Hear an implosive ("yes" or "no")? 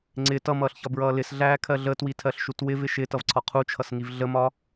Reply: no